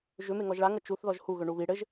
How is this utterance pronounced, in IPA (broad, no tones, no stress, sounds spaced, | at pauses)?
ʒ ʏ m e ŋ ɔ ʒ ɭ a ŋ ʌ t͡ʃ u θ ð ɔ ʒ h u ɣ ʏ ɳ u β i ɽ ɘ ʒ